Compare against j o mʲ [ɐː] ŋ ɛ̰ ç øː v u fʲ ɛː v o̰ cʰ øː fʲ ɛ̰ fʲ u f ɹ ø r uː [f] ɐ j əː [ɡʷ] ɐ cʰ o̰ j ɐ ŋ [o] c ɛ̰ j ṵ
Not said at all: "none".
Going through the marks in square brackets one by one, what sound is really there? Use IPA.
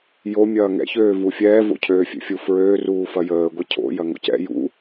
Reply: ɐː, f, ɡʷ, o̰

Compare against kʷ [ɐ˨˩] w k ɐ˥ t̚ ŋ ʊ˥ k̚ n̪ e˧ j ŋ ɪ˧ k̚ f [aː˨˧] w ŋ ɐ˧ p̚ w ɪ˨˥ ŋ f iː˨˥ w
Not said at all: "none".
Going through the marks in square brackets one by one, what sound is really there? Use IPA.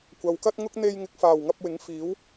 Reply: ɐ˨, aː˨˩

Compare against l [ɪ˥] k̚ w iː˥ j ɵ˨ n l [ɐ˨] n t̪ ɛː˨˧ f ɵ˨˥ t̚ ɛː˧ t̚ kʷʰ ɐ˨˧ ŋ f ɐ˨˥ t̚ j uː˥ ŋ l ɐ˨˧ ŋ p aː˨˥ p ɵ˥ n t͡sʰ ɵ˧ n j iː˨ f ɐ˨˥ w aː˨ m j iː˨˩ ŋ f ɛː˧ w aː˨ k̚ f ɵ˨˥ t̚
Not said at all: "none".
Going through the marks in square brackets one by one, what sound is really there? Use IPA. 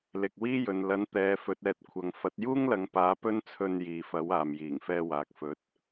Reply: ɪ˨, ɐ˨˥

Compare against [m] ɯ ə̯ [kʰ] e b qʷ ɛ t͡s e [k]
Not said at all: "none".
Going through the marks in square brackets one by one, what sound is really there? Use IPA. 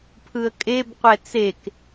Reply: pʰ, kʼ, k

